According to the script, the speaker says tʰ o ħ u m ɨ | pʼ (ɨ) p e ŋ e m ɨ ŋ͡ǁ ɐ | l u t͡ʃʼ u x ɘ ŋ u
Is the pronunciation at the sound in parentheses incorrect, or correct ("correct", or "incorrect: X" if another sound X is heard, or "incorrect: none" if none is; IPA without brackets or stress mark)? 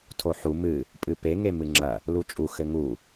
correct